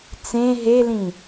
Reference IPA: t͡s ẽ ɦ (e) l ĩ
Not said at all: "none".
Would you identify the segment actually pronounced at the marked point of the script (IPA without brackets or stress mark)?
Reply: e